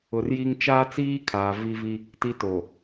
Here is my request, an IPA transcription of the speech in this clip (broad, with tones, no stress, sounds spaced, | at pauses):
ʊ˨ r j i˦ ŋ t͡ʃ aː˦ t͡s iː˦ kʰ aː˨ v i˦ v i˦ | t i˦ t o˨